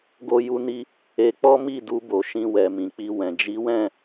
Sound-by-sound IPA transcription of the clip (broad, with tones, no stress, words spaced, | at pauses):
ɡo˦ju˦ni˦ | e˧k͡pɔ˦mi˦˨du˧ bo˨ ʃĩ˧wɛ˨ mĩ˨k͡pi˧wɛ̃˨ d͡ʒi˨˦wɛ̃˦˨